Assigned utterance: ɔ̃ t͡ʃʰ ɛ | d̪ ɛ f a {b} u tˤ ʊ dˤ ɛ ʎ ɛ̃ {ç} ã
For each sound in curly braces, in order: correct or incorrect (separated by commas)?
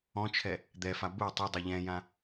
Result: correct, incorrect